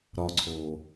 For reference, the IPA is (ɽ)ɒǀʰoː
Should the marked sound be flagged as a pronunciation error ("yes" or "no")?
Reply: yes